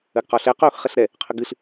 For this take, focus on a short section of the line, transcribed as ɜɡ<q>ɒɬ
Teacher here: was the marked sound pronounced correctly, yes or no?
yes